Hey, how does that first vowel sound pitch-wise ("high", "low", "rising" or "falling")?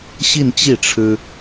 falling